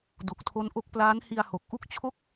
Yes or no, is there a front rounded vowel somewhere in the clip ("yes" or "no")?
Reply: no